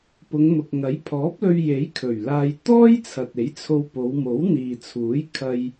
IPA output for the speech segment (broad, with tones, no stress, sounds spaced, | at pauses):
p ʊ˨˧ ŋ m ʊ˨ k̚ ŋ ɐ˨˥ j pʰ ɔː˨˥ p̚ l ɵ˧ ɥ j e˨˥ j kʰ ɵ˨˩ ɥ l aː˧ j t̪ ɔː˥ j t͡sʰ ɐ˨ t̚ e˨˥ j t͡sʰ o˧ w p o˨˧ w m o˨˥ w n̪ iː˨ t͡sʰ uː˨˥ j kʰ ɐ˧ j